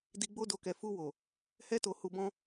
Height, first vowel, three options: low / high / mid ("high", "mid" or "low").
high